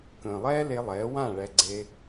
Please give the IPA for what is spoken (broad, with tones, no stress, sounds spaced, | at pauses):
k ə̃ː˨ lˠ ɛː˦ l e˧ lˠ ɛː˨˦ w ã˦˨ ɭ ɛ˧ ɡ͡ǀ e˦